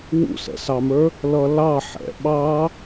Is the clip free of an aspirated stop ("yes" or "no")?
yes